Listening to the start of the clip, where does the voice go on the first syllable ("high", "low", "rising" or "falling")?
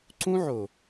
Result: high